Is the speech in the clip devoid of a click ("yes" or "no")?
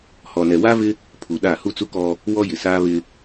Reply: yes